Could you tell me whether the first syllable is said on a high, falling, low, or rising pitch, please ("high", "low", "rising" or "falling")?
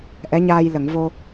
rising